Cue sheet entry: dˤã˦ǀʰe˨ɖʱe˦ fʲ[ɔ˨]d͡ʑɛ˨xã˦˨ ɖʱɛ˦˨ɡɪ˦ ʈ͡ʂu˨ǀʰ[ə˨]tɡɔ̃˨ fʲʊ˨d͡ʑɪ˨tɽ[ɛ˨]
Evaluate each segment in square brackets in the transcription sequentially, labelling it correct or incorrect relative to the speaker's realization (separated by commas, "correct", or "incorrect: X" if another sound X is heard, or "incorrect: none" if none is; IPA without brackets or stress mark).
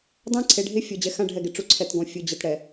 correct, incorrect: ɛ˨, correct